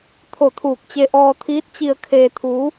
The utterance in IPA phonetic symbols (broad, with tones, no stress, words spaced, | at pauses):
t̪ʰo˧˩t̪ʰuː˧˩k̚t͡ɕe˧ ʔɔː˧t̪ʰiː˧˥t̚t͡ɕi˧ə̯ kʰeː˧t̪ʰuː˧˥